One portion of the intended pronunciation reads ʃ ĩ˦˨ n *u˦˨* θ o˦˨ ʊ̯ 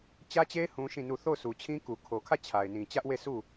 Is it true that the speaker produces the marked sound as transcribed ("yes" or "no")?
yes